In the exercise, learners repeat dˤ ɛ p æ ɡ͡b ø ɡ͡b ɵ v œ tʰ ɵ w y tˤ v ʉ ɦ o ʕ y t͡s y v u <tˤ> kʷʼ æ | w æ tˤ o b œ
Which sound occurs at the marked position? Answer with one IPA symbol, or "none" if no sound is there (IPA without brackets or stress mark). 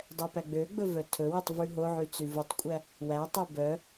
tˤ